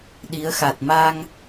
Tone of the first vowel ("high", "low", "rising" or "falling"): rising